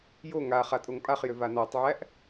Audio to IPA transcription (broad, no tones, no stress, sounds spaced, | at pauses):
j o ŋ a χ a tʼ o ŋ pʼ a χ j ʏ v a n ɔ tˤ ʕ æ ʔ